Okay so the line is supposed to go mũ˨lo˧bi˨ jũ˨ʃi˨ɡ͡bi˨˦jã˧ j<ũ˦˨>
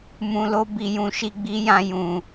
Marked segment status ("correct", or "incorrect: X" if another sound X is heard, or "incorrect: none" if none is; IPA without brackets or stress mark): incorrect: ũ˨